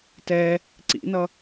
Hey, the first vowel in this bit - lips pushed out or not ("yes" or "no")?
no